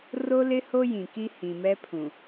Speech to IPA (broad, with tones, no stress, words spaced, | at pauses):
ro˦lɪ˦ ho˦jĩ˨ki˦ hĩ˨mɛ˦pʰũ˨